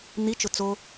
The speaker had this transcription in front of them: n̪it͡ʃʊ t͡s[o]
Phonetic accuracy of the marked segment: correct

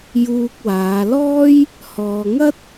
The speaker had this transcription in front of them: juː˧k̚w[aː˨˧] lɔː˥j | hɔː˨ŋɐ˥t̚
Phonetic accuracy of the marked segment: correct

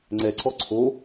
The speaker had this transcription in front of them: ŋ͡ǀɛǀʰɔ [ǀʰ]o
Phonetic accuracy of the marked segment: correct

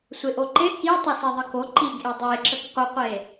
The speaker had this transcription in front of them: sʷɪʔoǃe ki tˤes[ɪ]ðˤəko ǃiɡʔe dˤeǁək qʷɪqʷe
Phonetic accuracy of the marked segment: incorrect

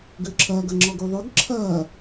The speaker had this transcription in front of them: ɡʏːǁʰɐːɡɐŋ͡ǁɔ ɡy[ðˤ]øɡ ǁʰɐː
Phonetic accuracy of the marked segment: correct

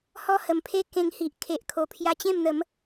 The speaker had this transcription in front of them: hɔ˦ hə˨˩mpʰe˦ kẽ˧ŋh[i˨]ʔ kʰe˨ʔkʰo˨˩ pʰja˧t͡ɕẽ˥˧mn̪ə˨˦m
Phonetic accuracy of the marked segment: correct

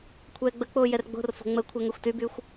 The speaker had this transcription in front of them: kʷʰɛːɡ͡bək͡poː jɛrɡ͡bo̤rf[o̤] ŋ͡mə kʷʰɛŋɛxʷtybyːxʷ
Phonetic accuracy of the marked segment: correct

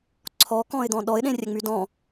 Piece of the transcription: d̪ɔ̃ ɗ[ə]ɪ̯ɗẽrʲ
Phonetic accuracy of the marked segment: incorrect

